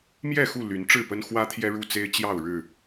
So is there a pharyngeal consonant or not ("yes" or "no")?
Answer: no